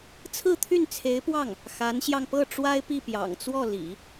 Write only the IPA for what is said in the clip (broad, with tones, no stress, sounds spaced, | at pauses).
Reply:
t͡sʰ ɹ̩˥˧ t̪ʰ y˥˩ n t͡sʰ e˧˥ ɪ̯ p w ɑ˥˩ ŋ | x a˧˥ n ɕ j ɑ˧ ŋ p ɤ˥˩ ʈ͡ʂ w a˥ ɪ̯ p i˥˩ p j ɑ̰˨˩ ŋ t͡s w ɔ˥˩ l ḭ˨˩˦